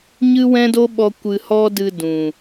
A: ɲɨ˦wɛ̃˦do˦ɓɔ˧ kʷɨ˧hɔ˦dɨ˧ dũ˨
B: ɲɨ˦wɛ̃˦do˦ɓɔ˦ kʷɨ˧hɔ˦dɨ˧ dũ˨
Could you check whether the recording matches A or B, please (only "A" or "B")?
A